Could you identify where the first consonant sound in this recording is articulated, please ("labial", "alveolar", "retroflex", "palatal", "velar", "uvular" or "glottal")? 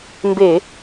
labial